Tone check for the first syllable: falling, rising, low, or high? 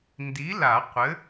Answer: rising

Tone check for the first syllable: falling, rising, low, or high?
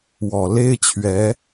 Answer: low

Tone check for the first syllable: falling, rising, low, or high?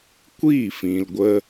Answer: falling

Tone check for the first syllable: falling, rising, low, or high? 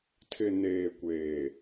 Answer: low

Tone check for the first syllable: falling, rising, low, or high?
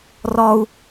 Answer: high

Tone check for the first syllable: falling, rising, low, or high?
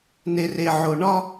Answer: low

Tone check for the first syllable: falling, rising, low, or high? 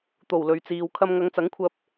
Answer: low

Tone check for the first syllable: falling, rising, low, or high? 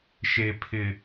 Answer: low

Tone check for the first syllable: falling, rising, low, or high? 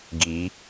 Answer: rising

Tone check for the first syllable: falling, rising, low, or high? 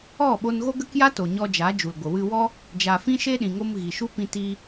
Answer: falling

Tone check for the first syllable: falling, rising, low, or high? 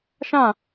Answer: falling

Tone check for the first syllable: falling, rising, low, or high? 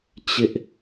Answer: high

